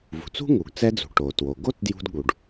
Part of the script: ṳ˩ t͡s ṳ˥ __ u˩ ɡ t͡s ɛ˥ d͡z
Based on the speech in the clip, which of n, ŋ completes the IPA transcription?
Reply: ŋ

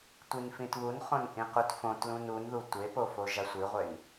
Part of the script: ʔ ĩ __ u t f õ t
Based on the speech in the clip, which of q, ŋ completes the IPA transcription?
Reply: q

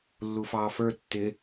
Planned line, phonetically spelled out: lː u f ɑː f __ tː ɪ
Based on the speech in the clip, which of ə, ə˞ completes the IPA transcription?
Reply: ə˞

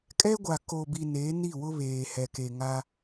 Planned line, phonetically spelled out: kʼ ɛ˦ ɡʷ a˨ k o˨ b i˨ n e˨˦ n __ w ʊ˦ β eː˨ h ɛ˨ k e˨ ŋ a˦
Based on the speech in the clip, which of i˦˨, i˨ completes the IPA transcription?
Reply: i˦˨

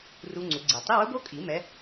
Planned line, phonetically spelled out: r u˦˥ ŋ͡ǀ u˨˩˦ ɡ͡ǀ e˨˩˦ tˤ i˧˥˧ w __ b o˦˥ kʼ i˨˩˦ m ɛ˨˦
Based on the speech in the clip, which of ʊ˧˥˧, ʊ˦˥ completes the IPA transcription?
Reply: ʊ˦˥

